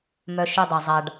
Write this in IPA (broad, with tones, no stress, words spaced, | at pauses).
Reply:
mœ˧ʃø˦˨dˤa˨zˤa˨ɖ